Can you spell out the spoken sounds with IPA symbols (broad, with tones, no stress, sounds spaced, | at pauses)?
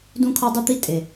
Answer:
d ũ˥ kʰ ɔ˥ dˤ u˥ t̪ i˥ tʼ e˨